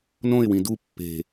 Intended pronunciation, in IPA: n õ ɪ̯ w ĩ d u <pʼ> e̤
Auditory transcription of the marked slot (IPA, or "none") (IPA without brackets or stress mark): pː